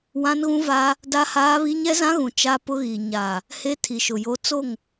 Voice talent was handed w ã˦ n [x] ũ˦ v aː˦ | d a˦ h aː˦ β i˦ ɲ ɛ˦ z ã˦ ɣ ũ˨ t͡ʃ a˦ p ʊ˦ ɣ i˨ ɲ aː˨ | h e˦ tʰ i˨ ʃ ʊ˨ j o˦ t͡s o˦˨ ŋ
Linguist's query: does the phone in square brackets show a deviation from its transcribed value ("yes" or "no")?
yes